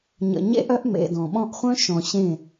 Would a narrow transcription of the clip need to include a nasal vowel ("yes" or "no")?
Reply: yes